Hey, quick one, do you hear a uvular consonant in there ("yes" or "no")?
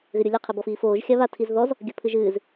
yes